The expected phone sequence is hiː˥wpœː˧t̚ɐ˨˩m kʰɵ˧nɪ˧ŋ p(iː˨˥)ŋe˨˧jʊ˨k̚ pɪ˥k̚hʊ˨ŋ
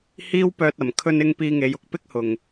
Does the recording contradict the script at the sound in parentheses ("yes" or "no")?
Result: yes